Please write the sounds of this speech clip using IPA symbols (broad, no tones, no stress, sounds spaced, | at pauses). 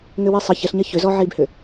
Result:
ŋ ʏ w i sˤ ə ç ə ɬ ɲ ɐ ç ʏ z ɔ ʕ i b h ʏ